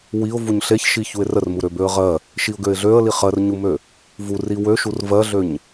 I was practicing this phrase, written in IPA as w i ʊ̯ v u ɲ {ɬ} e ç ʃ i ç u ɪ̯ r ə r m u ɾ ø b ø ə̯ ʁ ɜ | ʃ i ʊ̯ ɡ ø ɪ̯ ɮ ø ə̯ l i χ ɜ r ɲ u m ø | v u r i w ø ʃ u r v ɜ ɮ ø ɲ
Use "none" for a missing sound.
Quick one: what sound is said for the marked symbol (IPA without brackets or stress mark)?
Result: ɬ